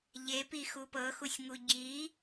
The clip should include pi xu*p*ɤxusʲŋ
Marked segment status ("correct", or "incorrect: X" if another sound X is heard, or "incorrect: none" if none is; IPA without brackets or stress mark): correct